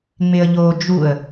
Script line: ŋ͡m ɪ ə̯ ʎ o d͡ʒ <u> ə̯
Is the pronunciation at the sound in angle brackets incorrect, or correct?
correct